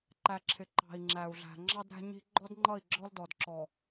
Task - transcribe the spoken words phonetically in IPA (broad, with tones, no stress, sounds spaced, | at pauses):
ǃ æ˨ ǁʰ ɪ˨ ǃ ɑ̤˨ i̯ ŋ͡ǁ æ˨ u̯ ɮ æ̤˨ ŋ͡ǁ ɑ˦ d ɾ æ̤˦ ɲ i̤˦ ɡ͡ǃ ɔ˦ d ŋ͡ǃ ʌ˦˨ i̯ ɡ͡ǁ ɔ˦ l d ɔ˨ d ǁ ɔ˨